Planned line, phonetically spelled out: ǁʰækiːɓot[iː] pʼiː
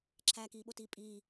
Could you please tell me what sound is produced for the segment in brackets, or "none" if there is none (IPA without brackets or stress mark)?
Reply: iː